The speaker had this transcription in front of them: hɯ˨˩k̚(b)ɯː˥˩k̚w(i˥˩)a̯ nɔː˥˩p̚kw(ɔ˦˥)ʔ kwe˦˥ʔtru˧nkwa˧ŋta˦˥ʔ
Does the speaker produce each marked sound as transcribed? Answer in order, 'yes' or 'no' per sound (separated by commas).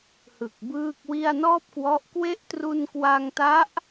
yes, yes, yes